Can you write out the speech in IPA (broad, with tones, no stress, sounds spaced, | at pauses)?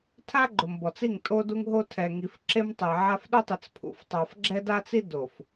tʰ a˦ ɡ͡ǃ ʊ˨ m b ɔ˨ t͡s i˦˨ ŋ tʼ o˦ d u˦ ŋ ɦ o˦ tʰ ɛ˨ ŋ i˨ f ǁ e˦ m tˤ ɛ˨ ʕ a˦ f ɗ ʊ˦ tˤ ɪ˨ t͡s pʰ ṵ˨ f tˤ a˨ f ɡ͡ǁ ɛ˦ d a˦ t͡s i˦ d o˨ f